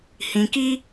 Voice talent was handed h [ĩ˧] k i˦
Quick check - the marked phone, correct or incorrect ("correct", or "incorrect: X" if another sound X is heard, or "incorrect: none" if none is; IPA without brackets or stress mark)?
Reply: correct